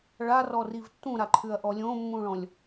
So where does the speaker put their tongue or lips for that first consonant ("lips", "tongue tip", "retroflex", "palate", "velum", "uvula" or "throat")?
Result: retroflex